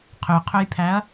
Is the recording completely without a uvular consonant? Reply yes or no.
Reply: no